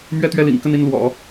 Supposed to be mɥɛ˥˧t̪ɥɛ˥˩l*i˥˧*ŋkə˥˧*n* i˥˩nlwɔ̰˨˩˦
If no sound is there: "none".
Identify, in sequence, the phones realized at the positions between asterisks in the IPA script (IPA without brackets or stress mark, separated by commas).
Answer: ḭ˨˩, n